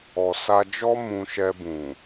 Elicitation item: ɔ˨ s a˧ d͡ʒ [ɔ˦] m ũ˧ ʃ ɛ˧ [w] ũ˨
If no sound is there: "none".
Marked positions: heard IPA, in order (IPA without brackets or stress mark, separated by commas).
ɔ˦, b